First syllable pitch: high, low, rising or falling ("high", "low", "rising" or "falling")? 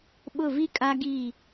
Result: falling